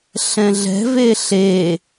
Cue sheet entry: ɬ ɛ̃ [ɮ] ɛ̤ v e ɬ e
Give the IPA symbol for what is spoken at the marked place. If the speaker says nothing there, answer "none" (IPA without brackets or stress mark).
ɮ